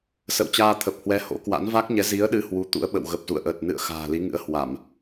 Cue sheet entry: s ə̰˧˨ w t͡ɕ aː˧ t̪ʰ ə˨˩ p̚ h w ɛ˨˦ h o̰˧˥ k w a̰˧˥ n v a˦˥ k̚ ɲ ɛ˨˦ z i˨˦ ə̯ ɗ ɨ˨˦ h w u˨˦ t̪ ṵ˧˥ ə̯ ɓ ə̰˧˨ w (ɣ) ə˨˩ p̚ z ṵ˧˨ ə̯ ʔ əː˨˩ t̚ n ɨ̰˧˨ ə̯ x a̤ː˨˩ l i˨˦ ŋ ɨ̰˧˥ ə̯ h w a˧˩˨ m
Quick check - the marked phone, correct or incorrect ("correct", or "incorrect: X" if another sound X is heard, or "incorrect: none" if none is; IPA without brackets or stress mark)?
correct